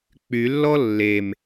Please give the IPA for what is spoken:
k͡p y lː ɔ lː e m

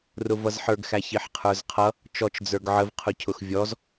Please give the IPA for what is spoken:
r ʊ v ʌ z ħ ə˞ ɡ x æ ç i ħ qʰ ə˞ z qʰ ʌ | t͡ʃ ɔ t͡ʃ d͡z ə˞ ɡ ʕ ə v qʰ ʊ cʰ ʊ x vʲ ɔ z

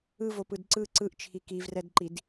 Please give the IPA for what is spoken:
ɯ v o p ɯ d ǀ ɯ ǀ ɯ ʔ t͡ʃʰ i k i v r ɛ d ǃ i d

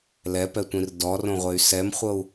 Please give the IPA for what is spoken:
l ɛ p ɛ tʷ ĩ r d ɔ r õ ʁʷ e y̯ s ɛ m χʷ ɤ u̯

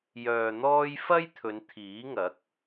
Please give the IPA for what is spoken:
j œː˨ n̪ ɔː˧ j f ɐ˥ j t̪ʰ ɵ˨˧ n t̪ʰ iː˨˥ ŋ ɐ˨˥ k̚

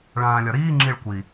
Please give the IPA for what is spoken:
ɭ ãː lʲ ɒ ɾ iː ŋ͡ǁ i ɭ kʷ i

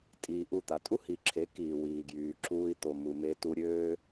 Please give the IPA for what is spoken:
tʼ iː˧ ʔ u˦˨ t̪ a˧ tʼ u˦ h i˨ ǁʰ e˨˦ k iː˨ w iː˨ ɡ j yː˨ ǁʰ uː˧ i̯ t̪ o˨ m u˨ m e˧ t u˧ ɾʲ øː˦

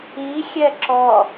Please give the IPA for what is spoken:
i xʲ ɛ ǁ ɔ

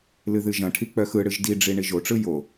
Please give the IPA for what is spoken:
l ɨ ð ɨ ʒ ɐ̃ ʈʰ i k͡p œ x ɯ ɽ ɨ ʒ d i ɖ͡ʐ i ɳ i ʒ o ʈ͡ʂ ɯ j o

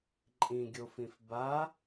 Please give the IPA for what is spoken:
ǃʼ ĩ ɡʲ o f ĩ f b a

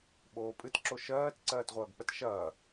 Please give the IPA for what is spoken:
ɓ oː pʼ ɨ t ǁ o ʃ ɜː t ǀ ɜː t ʁʷ ɐː ɡ k͡p ə t ʃ ɐː

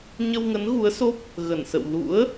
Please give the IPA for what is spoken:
ɲ ə˧ w ŋ ə˨˦ n ɣ u˨˦ ə̯ s o˦˥ p̚ | ɣ ə˧˩ n s ə̰˧˨ w l ṵ˧˥ ə̯

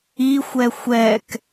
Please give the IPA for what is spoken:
i xʷ ɛ xʷ ɛ k

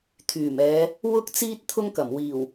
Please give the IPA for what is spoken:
t̪ʰ yː˨˩ m ɛː˨˧ | w ʊ˥ k̚ t͡s iː˥ t̚ t̪ʰ ʊ˥ ŋ k ɐ˨˩ m w iː˨˩ w

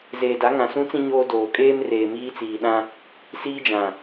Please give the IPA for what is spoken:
z eː˨ d a˨˦ ŋ ã˨ s ũ˦ t͡s ĩ˦ ɲ oː˦ d oː˨ kʼ eː˦ m r eː˨ m iː˦ t͡s iː˨ ɗ ã˦ | s iː˦ d͡ʒ ã˨

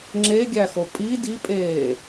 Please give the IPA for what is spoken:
ŋ͡ǁ e ɡʲ æ x o pʼ i d i pʼ eː

